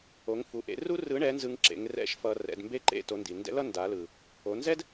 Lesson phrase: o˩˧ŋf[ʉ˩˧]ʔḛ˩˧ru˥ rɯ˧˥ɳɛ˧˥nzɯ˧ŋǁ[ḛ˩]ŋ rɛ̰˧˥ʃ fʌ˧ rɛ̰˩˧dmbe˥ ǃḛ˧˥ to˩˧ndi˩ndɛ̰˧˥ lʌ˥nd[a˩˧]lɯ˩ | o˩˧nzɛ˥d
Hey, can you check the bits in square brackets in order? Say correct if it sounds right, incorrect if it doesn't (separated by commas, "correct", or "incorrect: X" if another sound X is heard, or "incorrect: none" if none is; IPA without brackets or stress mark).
incorrect: u˩˧, incorrect: ḛ˩˧, correct